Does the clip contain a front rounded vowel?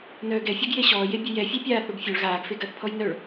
yes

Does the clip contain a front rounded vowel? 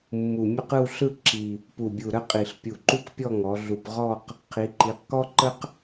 no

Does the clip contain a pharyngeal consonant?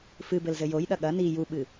no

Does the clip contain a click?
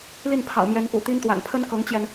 no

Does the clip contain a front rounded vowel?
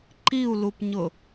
no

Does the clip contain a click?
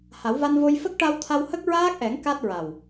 no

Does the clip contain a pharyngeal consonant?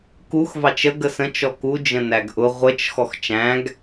no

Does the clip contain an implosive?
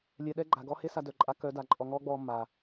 yes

